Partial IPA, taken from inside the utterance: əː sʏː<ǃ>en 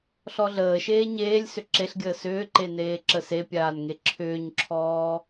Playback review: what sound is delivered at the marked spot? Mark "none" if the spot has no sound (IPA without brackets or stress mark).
ǃ